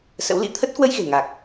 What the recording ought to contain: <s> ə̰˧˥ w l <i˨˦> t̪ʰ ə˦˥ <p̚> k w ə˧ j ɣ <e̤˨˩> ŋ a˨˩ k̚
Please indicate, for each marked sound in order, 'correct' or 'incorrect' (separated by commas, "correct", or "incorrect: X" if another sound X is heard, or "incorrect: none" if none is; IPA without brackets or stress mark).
correct, incorrect: ḭ˧˥, incorrect: t̚, correct